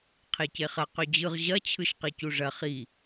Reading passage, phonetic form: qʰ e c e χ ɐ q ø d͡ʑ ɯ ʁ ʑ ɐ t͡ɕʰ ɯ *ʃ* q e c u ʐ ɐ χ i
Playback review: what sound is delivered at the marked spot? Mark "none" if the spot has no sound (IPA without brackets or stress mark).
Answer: ʃ